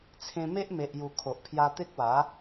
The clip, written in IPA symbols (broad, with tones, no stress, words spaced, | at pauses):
t͡sʰẽ˧me˦ʔ me˨ʔju˨˩ kʰo˨ʔpʰja˧ t̪e˦k̚wa˨˦